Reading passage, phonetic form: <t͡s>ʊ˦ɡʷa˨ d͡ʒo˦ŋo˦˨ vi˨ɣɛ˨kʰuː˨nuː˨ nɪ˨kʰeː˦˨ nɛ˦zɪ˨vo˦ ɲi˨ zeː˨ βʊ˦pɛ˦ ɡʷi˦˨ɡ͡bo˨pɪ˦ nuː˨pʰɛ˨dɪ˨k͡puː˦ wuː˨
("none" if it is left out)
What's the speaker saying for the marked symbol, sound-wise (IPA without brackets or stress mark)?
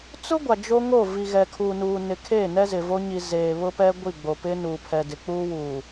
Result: t͡s